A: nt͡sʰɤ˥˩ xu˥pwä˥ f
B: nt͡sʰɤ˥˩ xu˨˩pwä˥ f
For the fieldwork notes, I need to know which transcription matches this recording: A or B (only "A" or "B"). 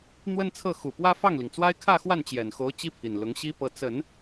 B